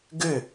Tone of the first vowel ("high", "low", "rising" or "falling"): falling